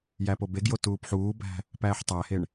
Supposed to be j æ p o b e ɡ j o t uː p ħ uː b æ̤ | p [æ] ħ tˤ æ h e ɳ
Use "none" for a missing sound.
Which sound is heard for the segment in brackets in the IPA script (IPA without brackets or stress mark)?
æː